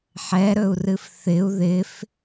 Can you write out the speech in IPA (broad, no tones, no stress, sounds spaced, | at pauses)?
ħ ɛ ɾ ɵ u̯ r ɨ f θ ɪ u̯ ð ɪ f